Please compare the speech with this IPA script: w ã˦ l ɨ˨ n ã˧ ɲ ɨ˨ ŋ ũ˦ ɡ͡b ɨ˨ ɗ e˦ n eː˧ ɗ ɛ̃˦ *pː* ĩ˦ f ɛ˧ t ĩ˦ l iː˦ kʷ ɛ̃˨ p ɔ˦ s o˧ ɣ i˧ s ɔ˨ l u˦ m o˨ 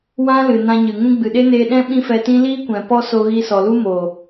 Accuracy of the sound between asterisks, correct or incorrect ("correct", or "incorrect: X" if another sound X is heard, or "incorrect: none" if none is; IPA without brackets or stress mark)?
incorrect: ɓ